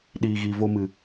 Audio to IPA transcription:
ɗ iː˨ ɣ i˨ v o˧ m ɨ˨

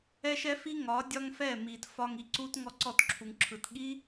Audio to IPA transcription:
ɛ˦ ʃ ɛ˦ f i˦ ŋ ɒ˨˦ dʲ ɒ˦ ŋ f ɛ˦˨ m i˨ t f ɒ˧ ŋ i˨ ǀ u˦ t ŋ ɔ˦ ǀ ɔ˦˨ t ǁʰ u˨ ŋ ǁʰ ɯ˨ t ɠ i˦

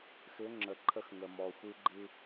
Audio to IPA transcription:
x ʏ˨˦ ŋ͡ǁ ə˨ ǃʰ ə˦˨ x ŋ ə˨ m ɔ˨ xʷ ɨ˦ ɡ͡ǃ ɨ˦

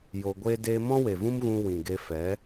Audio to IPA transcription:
j o˧ ɡʷ e˦ d eː˦ m ɔ̃˦ w e˨ v ũ˦ m ɣ ũ˧ w ĩ˨ ɡ e˧ f ɛ˨˦

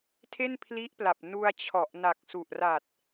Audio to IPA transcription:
tʰ e˥˩ n pʰ l i˦˥ ʔ p l a˨˩ p̚ n u˧ a̯ t͡ɕʰ ɔ˨˩ ʔ n a˨˩ k̚ s u˨˩ ʔ r a˨˩ t̚

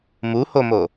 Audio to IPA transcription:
m u h o m o

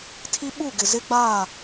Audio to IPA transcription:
tʰ i˦ ɓ u˦˨ ɡ ɪ˨ z ɪ˦ ɡ͡b a˦˨

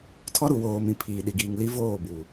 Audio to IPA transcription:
tʰ ɔ˦ ɾ u˨ w oː˨ m ĩ˨ pʰ iː˨ ɗ i˨ ɡ iː˨ ŋ l i˦ v oː˦˨ b u˨

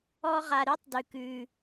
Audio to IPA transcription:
ɔ˦ ʁ a˧ ɾ ʉ˦ tˤ d ʉ˧ k ʉ˧

